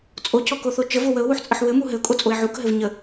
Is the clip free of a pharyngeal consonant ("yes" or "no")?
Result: no